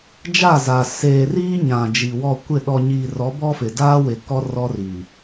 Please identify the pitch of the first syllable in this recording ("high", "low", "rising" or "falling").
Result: falling